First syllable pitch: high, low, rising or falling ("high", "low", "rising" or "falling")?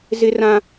high